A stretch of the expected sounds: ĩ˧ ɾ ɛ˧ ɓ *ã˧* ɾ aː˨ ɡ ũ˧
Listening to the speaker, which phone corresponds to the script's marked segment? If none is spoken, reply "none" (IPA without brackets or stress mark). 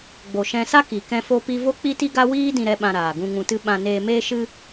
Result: ã˧